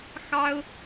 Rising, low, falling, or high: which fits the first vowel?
high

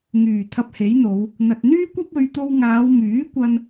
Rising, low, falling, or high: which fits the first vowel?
low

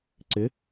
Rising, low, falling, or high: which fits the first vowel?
rising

